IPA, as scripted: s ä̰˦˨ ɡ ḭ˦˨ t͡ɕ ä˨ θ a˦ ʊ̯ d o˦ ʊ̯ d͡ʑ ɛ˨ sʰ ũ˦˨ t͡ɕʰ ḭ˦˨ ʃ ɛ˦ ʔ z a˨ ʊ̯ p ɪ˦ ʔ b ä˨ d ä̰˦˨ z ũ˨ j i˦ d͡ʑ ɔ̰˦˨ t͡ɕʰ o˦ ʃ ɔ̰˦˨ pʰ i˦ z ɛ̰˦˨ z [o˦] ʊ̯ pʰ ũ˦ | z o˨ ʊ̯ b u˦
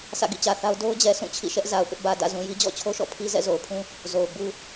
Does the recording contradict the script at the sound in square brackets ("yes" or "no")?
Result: yes